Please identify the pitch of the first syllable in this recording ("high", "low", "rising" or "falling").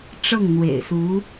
falling